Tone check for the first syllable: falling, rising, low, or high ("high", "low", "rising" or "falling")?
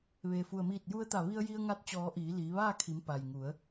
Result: low